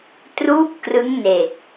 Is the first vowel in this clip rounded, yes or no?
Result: yes